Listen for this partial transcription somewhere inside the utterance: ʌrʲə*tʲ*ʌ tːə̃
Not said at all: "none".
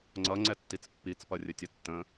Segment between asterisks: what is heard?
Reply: tʲ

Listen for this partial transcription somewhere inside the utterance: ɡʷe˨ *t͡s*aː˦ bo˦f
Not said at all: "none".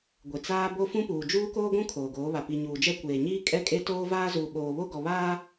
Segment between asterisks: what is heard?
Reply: t͡s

